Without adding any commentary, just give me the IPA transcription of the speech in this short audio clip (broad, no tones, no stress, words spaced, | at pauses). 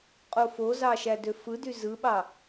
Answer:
qʼofozɑ ʃædøfɯdy zɯɓɑ